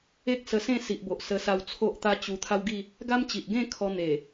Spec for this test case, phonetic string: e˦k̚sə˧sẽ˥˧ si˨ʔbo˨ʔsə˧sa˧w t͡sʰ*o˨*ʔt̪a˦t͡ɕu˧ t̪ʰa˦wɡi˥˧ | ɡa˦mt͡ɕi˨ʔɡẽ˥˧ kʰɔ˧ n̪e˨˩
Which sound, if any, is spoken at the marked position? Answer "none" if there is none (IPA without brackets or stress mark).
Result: o˦